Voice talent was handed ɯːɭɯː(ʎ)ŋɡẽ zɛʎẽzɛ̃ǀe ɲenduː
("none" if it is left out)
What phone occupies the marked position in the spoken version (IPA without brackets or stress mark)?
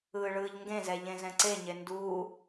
ʎ